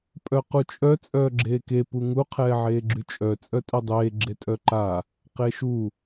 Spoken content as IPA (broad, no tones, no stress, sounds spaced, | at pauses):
pʼ œ q u t͡ʃʼ œ t͡sʼ œː ɡ͡ǁ eː k e p u ŋ u qʰ ɛː ʕ eː ɡ͡ǁ y t͡ʃʼ œ t͡sʼ œ tʼ œ dˤ eː ɡ͡ǁ e tʼ œ ǃ a | q e ʃ u